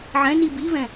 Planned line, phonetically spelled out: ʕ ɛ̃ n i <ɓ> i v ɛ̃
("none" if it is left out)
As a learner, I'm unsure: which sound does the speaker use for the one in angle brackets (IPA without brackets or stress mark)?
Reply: b